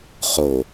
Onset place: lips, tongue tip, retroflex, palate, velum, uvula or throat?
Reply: uvula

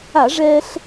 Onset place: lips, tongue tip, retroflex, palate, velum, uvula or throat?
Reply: retroflex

